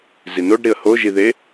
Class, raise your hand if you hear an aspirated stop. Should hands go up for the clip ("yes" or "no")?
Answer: no